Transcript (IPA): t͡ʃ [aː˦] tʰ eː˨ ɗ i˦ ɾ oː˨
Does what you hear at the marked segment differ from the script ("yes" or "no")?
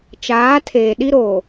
yes